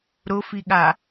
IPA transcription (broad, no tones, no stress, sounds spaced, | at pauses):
ɾ ʊ f i ɠ a